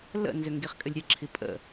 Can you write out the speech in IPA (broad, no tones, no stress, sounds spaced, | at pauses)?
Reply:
l ə̰ n z ʏ ŋ ɡ i χ kʼ ɘ lʲ ɾʲ ɛ ǁʰ i pʼ ə̰